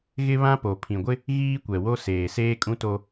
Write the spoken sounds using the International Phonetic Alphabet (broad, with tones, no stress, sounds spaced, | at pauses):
ɣ ɪ˦ β ã˦ p o˨ pʰ ĩ˨ ɡʷ ɪ˦ | ɣ iː˦ kʷ ɛ˨ w o˦ s eː˨ s eː˦ kʼ ũ˦ t o˦